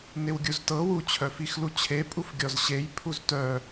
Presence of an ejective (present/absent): present